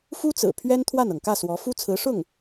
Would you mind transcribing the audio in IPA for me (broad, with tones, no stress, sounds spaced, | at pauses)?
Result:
f u˥ t͡s ɹ̩˨˩ pʰ ɥ ɛ˥ n t̪ʰ w a˥˩ n ɤ˩ ŋ k ä˥˩ s w ɔ˧˥ f u˥ t͡sʰ ɹ̩˧˥ ʂ ʊ˥˩ ŋ